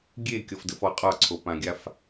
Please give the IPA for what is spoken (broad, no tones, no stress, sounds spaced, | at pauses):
ɡʲ e kʲ ɔ f d ə f ɔ qʼ ɒ ǀʰ o p ã ɡʲ a f